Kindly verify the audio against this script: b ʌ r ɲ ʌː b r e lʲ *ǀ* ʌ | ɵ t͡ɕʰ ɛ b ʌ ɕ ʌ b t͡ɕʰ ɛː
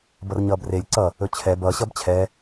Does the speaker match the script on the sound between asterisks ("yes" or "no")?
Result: yes